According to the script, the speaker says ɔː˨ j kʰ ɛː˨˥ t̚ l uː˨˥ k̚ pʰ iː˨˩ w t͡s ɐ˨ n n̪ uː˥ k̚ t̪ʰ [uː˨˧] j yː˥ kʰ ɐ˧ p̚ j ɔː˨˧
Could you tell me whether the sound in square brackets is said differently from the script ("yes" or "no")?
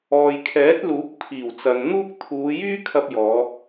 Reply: no